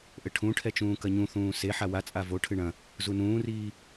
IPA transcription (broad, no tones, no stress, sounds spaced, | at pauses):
ʔ ɘ ʈʰ ũ ʈʰ ɛ t͡ʃ ũː k ɐ ɲ ũ θ ũː s e ħ a w a t͡sʼ a v o ʈʰ ɨ ɳ ɐ̃ | z u n ũː r iː